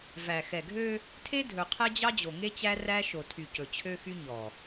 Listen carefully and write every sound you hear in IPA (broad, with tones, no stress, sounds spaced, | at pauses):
v æ˨ x ɛ˨ ɡʱ ø˦ | tʰ e˦ dʱ ɵ˨ qʰ ɛ˦ d͡ʑ ɑ˦ d͡ʑ o˨ ŋ e˦ t͡ɕ æ˦ r æ˦ ʃ o˨ tʰ y˨ c ɵ˨ t͡ɕʰ ø˦ x y˦ ɲ ɔ˨